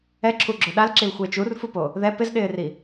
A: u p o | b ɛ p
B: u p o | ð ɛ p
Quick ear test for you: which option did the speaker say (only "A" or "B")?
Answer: B